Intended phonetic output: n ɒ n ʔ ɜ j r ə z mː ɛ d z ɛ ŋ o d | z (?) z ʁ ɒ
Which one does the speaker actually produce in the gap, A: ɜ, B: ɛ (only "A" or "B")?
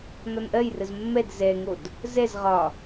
B